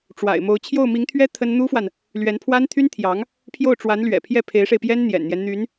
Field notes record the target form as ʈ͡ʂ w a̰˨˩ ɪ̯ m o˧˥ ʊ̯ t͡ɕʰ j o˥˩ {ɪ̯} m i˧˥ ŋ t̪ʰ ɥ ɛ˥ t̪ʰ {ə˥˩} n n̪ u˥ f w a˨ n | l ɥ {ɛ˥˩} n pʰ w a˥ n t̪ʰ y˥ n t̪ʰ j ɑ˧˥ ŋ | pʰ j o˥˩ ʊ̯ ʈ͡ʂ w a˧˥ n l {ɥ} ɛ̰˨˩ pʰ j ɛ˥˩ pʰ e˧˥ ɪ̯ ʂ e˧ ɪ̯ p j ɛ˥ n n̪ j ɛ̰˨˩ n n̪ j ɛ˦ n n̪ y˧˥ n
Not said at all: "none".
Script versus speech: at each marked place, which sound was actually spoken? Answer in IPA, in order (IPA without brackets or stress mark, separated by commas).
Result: ʊ̯, ə˥, ɛ˧˥, ɥ